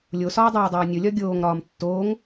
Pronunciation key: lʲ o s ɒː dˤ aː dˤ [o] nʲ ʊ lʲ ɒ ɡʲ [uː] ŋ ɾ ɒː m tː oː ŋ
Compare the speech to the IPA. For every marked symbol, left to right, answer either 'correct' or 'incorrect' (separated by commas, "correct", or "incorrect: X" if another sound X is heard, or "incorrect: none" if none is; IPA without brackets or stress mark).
incorrect: oː, incorrect: oː